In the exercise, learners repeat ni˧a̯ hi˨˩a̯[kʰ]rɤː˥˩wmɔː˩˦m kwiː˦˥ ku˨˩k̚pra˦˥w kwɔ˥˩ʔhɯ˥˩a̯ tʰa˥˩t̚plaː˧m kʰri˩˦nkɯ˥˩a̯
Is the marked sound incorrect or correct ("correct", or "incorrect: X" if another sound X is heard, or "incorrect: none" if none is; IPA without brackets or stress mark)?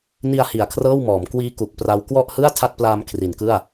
correct